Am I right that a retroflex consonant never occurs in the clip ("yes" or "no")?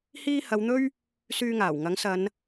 yes